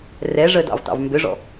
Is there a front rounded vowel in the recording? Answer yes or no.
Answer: yes